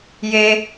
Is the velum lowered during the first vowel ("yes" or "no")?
no